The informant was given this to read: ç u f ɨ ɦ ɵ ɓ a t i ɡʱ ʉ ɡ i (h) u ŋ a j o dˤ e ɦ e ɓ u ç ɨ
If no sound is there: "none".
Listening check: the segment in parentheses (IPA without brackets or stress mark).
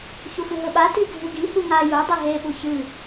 h